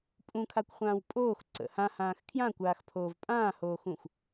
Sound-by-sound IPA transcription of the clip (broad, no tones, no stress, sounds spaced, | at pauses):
pʼ ũ kʰ a kʷ χʷ ãː w pʼ oː x ǀ ə̰ h ã h ãː x kʰ j ã kʷ aː x pʰ oː v pʼ ãː h oː x ũ xʷ